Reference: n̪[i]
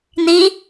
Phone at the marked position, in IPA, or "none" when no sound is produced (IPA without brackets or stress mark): i